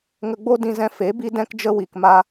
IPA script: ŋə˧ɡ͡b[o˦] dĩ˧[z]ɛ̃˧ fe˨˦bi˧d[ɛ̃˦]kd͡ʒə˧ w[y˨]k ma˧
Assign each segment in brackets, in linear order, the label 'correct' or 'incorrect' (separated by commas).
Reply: correct, correct, incorrect, incorrect